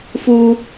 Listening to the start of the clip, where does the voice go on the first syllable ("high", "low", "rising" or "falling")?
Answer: high